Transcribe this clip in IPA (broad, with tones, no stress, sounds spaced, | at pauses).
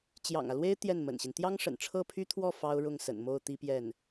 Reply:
t͡ɕ j ɑ̰˨˩ ŋ ä˦ l w e˥ ɪ̯ t̪ j ɛ˥˩ n m ə̰˨˩ n ɕ i˦ n t̪ j ɑ˥ ŋ ʂ ə̰˨˩ n ʈ͡ʂʰ ɤ˥˩ pʰ y˥ t̪ʰ w ɔ˥˩ f ɑ˥ ʊ̯ ɻ ʊ˥˩ ŋ s ə̰˨˩ n m o˥˩ ʊ̯ t̪ i˥ p j ɛ˥˩ n